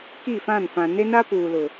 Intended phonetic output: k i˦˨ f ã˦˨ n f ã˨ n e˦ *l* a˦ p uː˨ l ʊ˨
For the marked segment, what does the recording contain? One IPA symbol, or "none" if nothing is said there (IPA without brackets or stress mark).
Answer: n